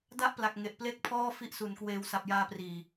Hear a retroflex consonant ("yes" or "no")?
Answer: no